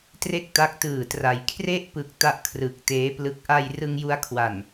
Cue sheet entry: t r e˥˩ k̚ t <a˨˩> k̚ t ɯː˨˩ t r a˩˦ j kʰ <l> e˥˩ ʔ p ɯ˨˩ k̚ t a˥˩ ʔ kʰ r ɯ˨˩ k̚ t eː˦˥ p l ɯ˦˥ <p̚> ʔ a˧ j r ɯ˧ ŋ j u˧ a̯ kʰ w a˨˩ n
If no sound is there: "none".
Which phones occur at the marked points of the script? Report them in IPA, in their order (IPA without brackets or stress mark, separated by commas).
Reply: a˦˥, r, k̚